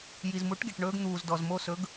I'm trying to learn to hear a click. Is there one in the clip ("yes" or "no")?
no